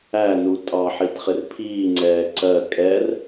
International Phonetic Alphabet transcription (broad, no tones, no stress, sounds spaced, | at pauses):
æ n u tʼ ɑ ħ i t χ ɪ r pʰ iː ŋ͡ǀ ɛː ǀ ɜ kʼ ɛ r